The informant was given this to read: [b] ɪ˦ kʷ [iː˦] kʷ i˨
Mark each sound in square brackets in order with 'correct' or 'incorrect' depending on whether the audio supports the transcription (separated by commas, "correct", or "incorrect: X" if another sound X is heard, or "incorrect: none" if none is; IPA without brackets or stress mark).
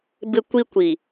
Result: correct, incorrect: i˦